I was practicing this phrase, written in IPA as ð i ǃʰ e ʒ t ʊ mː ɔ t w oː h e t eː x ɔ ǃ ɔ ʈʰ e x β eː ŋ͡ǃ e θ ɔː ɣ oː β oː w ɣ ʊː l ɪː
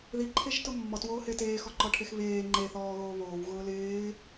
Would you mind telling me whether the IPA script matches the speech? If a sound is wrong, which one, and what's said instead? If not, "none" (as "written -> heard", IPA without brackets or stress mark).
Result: none